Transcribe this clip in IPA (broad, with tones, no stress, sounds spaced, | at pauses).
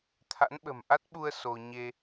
t̪ʰ a̰˧˥ n ɓ ə̤˨˩ m ʔ a˦˥ t̚ ɓ u˧ ə̯ s o˧ ɲ e˧